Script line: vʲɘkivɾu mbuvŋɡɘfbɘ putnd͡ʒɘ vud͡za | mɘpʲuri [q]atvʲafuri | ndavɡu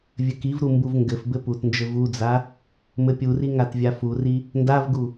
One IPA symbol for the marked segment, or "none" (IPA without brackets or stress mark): ŋ